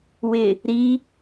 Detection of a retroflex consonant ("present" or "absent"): absent